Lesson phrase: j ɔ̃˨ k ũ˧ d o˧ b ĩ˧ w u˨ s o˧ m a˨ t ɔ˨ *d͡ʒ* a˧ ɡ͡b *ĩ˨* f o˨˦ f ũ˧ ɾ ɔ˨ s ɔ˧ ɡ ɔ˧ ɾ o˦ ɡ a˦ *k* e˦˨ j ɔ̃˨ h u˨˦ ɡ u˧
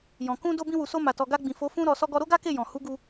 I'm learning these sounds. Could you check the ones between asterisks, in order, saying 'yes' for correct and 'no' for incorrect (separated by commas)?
no, yes, yes